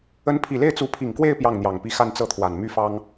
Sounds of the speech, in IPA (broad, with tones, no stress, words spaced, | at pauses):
ə˧˥npʰi˨˩le˥˩ɪ̯t͡su˧˥ pʰi˨˩ŋkwe˥˧ɪ̯ pjɑ˥˩ŋn̪jɑ˨˩ŋpi˥˧ xa˥˧nt͡sɤ˥˩t̪ʰwa˨˩n my˥fɑ˥ŋ